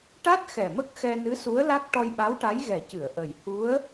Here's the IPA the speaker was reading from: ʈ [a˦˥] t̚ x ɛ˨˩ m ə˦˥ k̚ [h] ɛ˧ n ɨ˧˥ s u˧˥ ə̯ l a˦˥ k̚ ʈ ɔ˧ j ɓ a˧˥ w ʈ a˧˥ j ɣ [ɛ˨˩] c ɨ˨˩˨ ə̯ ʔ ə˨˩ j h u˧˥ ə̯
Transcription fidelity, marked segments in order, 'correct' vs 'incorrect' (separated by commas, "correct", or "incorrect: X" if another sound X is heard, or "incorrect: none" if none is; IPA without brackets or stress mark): correct, incorrect: x, correct